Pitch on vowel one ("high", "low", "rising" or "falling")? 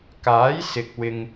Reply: rising